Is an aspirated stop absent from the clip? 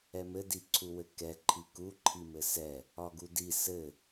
no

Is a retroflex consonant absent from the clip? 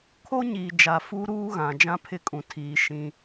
yes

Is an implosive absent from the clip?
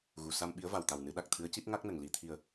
no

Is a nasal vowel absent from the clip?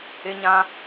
no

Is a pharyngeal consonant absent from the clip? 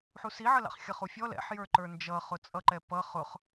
no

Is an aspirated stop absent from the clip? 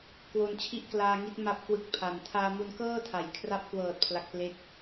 no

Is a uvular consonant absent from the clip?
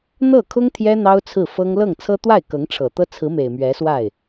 yes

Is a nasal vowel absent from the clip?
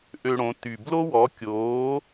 no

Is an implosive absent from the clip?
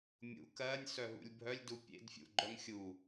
yes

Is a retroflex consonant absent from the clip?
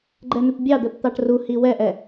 no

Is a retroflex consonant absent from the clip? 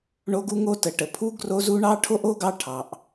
no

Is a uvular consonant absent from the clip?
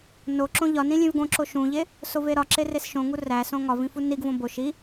yes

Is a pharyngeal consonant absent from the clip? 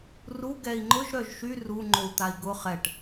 yes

